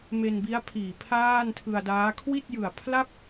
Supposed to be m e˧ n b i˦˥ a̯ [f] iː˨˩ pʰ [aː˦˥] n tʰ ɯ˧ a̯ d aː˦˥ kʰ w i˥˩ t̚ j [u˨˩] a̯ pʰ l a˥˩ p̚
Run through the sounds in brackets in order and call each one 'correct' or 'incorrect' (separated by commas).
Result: incorrect, incorrect, incorrect